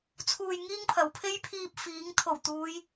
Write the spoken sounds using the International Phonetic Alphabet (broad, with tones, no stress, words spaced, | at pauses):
t͡sʰuː˨j ŋiː˥ŋpʰɐ˨˥wpʰe˥j pʰiː˧p̚fiː˨˥ŋ t̪ʰo˨˩wt̪uː˨˧j